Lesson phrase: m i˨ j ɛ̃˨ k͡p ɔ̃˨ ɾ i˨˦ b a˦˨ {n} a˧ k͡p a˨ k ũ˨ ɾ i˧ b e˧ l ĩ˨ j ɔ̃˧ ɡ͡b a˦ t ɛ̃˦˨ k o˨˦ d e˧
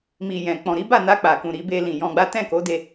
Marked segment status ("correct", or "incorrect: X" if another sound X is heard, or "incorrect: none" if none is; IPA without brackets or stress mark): correct